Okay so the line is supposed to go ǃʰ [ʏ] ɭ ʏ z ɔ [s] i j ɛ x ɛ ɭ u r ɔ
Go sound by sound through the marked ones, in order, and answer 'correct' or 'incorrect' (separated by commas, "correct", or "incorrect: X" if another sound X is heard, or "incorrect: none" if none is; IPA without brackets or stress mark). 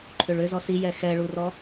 correct, correct